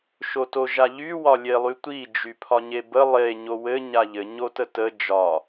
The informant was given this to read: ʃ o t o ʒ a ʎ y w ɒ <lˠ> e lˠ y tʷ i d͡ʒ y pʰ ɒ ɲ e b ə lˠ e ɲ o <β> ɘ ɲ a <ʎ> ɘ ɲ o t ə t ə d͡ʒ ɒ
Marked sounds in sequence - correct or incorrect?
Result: incorrect, incorrect, correct

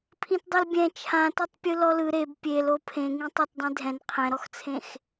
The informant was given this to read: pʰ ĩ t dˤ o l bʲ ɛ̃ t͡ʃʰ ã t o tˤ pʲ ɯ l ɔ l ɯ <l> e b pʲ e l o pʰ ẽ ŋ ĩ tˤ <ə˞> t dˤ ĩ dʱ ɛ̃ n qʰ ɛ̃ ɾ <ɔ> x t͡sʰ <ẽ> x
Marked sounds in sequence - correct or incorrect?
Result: incorrect, correct, correct, correct

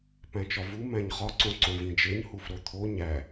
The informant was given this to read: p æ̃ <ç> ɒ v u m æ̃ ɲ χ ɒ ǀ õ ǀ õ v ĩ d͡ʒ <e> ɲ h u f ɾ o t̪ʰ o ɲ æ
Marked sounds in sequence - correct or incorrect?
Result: incorrect, correct

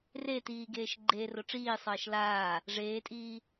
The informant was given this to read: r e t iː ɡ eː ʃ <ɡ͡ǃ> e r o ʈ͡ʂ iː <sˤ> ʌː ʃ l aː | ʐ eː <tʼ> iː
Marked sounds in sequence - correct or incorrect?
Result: correct, correct, correct

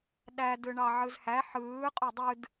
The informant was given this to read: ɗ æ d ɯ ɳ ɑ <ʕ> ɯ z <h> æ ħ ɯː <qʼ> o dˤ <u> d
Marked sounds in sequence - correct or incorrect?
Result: correct, correct, correct, incorrect

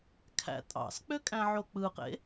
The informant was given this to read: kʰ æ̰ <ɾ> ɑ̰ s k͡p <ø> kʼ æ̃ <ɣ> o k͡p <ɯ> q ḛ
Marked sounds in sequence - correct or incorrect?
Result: incorrect, correct, incorrect, correct

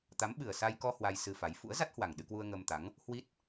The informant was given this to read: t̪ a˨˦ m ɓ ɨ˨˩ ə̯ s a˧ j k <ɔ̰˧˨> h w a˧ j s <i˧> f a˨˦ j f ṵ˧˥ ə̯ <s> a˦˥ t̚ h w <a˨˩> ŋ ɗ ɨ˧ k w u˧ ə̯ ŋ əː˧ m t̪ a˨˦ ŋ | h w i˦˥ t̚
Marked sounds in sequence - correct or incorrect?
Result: incorrect, incorrect, incorrect, correct

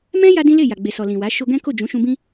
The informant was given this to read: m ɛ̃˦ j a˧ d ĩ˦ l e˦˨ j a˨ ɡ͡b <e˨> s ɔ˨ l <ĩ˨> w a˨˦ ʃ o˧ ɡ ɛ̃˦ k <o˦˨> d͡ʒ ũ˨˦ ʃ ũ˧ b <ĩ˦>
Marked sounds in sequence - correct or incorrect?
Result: correct, correct, correct, correct

